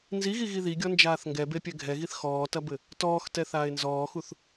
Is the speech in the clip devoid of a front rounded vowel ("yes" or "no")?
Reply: yes